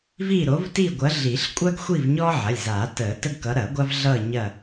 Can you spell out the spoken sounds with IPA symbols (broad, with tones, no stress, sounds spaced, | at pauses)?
v i˦˨ ɾ o˨˦ v t i˦˨ ɡʷ ɐ˨˦ ɮ i˨˩˦ ɬ kʷʼ ɐː˦ ɡ xʷ i˦˨ v ɲ ɔ˦ ʕ ɐ˩˧˩ lʲ z a˨˩˦ t əː˨˩˦ t ə˦ ɡ k ʌ˨˦ ɾ ɐː˨˩˦ ɡʷ a˦ v ɮ ʌː˦˨ ɲ ɐ˦˨